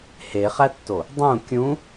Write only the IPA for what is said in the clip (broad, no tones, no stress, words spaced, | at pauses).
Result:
heχætːo | dˤũ kʲũ